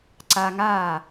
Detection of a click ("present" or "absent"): present